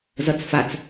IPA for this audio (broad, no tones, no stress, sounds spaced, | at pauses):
z ʌ t͡s f a t͡s